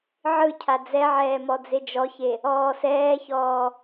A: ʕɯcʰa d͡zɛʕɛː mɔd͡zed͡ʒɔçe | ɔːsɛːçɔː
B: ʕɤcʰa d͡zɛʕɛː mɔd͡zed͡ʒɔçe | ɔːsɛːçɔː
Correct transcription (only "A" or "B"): A